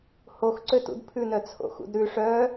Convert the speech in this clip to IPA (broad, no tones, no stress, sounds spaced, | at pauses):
h o x ǀ ø t ṵ d pʰ ʉ n œ t͡sʰ o̰ x ṵ d ɾ ʉ ʂ œ